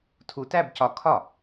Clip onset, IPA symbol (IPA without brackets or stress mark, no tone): tʰ